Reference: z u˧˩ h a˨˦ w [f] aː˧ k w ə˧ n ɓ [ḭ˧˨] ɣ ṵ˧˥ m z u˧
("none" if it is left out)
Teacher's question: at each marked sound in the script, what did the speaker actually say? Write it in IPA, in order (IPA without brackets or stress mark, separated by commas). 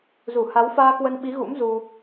f, i˨˦